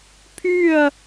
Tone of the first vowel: falling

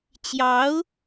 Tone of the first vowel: rising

